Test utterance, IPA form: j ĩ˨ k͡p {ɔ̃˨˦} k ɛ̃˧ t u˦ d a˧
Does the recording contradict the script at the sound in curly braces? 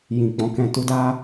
no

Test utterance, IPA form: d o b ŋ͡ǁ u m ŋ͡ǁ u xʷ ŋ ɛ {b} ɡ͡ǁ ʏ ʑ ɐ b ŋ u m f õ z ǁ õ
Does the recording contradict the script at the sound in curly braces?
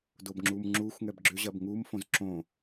no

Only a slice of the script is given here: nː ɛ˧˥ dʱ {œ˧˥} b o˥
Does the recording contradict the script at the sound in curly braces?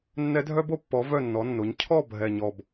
yes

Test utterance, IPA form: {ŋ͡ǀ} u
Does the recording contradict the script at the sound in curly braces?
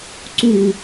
yes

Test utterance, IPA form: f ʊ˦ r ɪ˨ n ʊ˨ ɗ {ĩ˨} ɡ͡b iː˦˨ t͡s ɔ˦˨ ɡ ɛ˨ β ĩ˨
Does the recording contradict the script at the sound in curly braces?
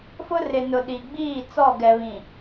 yes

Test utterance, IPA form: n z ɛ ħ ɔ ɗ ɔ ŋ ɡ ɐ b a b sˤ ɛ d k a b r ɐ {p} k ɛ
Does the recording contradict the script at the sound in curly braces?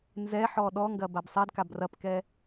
no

